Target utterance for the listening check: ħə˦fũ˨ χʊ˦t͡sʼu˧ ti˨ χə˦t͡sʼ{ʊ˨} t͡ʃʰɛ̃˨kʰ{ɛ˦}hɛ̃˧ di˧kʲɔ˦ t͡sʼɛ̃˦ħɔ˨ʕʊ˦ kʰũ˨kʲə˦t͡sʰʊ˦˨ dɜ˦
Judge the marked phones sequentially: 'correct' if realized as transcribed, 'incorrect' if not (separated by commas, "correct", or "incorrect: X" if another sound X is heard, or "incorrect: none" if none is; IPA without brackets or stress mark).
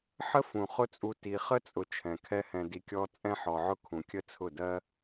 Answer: correct, correct